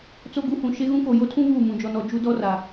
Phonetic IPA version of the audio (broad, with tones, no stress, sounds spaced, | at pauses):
t͡s o˦ ɡ u˦ h ũ˨ ʃ e˦ ɣ ũ˦ k o˨ j o˦ tʰ ũ˦ β uː˦˨ m ũ˨ d͡ʒ ɔ˨ n ɔ˨ d͡ʒ u˦ d ɔ˦ r a˨